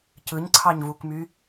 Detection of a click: present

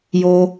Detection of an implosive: absent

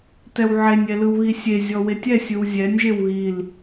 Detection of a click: absent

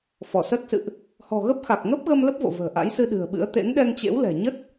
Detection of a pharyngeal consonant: absent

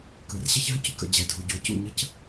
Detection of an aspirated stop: absent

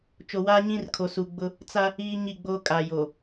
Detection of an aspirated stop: present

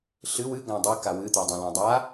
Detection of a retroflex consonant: absent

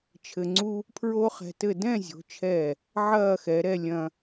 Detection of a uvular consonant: present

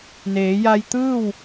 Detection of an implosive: absent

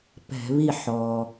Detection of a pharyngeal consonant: present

